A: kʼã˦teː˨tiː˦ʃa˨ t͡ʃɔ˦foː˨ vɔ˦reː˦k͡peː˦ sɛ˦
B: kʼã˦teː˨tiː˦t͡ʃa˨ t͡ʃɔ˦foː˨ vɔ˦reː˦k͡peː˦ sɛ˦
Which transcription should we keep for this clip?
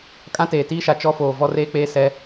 A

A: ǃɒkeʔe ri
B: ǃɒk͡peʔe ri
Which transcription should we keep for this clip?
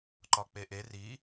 B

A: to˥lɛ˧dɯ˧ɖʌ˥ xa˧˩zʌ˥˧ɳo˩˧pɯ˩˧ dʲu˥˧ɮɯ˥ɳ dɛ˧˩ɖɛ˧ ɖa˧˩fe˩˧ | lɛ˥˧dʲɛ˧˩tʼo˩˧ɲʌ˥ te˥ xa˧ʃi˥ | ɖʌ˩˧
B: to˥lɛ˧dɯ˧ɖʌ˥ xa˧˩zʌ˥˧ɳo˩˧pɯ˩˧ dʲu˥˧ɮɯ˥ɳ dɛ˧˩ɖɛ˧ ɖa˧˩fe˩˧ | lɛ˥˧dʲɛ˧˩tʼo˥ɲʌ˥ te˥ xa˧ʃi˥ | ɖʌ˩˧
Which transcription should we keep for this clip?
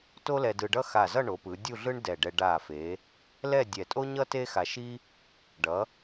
B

